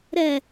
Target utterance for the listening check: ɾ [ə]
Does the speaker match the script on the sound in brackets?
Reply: no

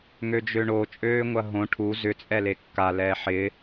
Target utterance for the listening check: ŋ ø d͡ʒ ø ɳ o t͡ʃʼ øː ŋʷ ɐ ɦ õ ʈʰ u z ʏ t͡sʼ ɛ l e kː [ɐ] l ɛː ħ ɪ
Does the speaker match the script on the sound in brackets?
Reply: no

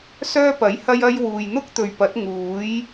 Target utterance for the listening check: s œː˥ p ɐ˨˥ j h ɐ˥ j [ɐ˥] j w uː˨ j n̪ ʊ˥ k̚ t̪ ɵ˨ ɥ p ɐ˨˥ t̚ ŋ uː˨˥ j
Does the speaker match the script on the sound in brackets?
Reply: yes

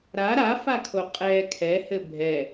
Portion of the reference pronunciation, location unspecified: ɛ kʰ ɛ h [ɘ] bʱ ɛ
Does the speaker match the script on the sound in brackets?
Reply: yes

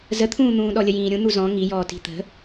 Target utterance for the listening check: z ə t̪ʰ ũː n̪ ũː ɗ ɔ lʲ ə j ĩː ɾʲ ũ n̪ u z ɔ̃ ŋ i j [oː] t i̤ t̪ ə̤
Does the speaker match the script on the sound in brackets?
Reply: no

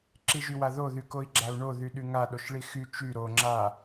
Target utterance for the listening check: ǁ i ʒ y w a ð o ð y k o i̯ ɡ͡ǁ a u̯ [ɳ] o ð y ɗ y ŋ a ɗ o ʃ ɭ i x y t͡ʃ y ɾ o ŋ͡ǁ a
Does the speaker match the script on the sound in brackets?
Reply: yes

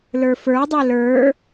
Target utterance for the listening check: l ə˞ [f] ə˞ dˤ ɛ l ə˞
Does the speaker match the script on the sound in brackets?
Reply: yes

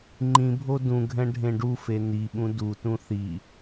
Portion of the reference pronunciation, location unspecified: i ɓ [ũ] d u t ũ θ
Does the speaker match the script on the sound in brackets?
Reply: yes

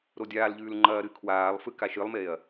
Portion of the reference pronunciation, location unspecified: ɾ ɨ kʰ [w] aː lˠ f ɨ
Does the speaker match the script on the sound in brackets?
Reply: yes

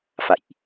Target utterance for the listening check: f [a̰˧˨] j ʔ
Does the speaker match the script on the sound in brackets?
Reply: yes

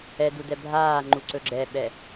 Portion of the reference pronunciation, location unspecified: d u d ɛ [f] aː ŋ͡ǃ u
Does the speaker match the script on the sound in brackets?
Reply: no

